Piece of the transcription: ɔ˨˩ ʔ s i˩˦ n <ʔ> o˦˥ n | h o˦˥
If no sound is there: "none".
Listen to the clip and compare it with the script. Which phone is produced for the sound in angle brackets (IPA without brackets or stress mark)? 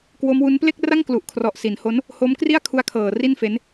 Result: h